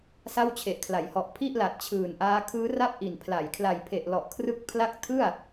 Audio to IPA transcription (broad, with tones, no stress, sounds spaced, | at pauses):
s a˥˩ w t͡ɕʰ e˨˩ ʔ kʰ l a˩˦ j h ɔ˨˩ ʔ pʰ i˥˩ ʔ l a˨˩ t̚ t͡ɕʰ ɯː˨˩ n ʔ aː˦˥ kʰ ɯː˦˥ r a˥˩ p̚ ʔ i˨˩ n pʰ l a˩˦ j kʰ l a˨˩ j pʰ e˨˩ ʔ l ɔ˨˩ ʔ kʰ r ɯ˦˥ k̚ pʰ l a˦˥ k̚ tʰ ɯ˥˩ a̯